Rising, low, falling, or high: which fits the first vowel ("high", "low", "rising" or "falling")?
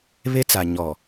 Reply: high